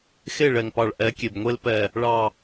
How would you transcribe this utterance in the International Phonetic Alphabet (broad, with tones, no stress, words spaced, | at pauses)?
xe˦˨ɭɛ˨ŋpɑ˨ɭ ʔɛ˨˦kʲe˨bŋʷe˦l pɛ˨ | ɭɑ˨